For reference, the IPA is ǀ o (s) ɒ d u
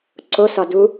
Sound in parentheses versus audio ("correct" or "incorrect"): correct